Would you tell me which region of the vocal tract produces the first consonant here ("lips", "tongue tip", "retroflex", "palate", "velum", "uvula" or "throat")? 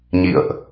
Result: palate